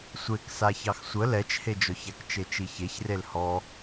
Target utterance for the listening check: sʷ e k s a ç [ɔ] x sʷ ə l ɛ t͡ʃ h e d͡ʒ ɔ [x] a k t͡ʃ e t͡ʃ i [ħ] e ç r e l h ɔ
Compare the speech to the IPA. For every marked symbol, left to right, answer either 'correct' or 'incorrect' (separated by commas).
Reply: incorrect, incorrect, incorrect